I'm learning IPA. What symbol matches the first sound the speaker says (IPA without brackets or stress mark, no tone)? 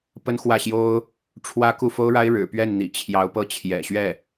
p